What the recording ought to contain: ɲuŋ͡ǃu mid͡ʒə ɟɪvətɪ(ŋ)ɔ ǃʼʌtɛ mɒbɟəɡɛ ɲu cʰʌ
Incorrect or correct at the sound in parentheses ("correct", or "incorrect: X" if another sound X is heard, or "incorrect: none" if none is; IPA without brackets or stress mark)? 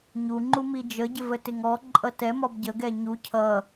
correct